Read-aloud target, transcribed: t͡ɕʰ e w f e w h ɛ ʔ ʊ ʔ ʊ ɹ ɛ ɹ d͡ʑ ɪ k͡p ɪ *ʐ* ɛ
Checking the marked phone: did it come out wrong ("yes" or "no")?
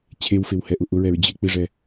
no